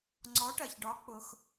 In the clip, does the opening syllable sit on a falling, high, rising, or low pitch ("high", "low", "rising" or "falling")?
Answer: rising